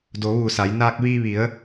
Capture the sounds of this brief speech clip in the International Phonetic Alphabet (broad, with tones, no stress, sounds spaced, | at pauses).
d o˩˧ ʋ uː˧˩ s a˩˧ j n aː˧ k̚ ʋ iː˧ ʋ i˩˧ ə̯